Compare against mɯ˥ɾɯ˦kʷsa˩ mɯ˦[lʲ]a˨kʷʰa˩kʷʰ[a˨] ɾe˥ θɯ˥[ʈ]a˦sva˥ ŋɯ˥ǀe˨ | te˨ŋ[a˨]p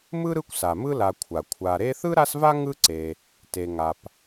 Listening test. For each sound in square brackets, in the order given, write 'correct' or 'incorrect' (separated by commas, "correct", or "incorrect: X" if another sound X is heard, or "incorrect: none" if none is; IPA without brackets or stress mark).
incorrect: l, correct, incorrect: ɾ, correct